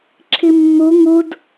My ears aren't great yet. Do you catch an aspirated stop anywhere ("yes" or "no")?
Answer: yes